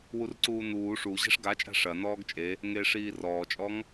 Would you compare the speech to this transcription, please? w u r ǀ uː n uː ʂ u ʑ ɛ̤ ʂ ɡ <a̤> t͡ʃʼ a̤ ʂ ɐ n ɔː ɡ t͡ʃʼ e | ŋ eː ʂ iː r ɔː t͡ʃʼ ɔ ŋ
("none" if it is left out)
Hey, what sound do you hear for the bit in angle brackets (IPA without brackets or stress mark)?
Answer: a